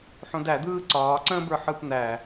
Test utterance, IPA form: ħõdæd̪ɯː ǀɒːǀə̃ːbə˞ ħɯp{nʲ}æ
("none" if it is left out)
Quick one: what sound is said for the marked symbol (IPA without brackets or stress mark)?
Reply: n̪